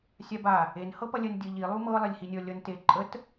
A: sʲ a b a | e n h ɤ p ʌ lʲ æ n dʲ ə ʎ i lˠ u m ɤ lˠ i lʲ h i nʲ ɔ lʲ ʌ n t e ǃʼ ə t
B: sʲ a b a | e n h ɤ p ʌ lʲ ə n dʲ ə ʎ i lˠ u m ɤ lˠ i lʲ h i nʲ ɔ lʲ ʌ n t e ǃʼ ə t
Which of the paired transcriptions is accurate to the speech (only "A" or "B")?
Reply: B